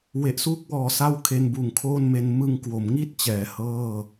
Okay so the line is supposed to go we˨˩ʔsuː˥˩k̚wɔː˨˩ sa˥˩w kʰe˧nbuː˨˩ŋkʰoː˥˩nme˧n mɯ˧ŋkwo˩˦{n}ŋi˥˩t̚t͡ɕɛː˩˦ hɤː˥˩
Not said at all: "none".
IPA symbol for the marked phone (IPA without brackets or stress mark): m